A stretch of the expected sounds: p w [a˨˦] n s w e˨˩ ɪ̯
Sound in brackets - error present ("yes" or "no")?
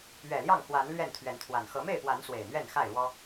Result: no